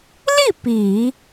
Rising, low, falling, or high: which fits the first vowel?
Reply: falling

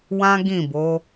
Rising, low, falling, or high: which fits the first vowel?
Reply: high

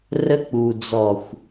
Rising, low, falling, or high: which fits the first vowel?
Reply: high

